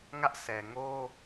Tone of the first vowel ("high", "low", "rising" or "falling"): high